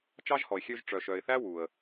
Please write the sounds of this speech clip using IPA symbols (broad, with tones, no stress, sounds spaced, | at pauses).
t͡ʃ ɑ˥ ʒ h ɔ˨ ɪ̯ xʲ ø˦ ʒ ʈ͡ʂ œ˨ ʃ œ˨ ɪ̯ θ æ˥ w u˩ ə̯